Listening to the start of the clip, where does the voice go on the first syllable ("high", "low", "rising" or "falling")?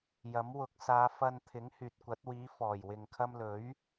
rising